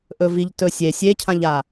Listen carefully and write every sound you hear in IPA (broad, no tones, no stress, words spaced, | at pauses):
ʔɵviʎtɵsʲe sʲecʰãʎa